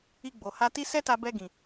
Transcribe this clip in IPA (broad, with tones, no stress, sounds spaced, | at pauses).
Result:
i˧ ɡ͡b o˨ h a˧ t i˦ s ɛ˦ t a˧ b ɛ˧ ɡ ĩ˨